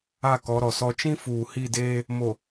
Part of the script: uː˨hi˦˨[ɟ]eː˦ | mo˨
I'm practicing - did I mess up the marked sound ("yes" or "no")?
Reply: yes